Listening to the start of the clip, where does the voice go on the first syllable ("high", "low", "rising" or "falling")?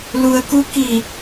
low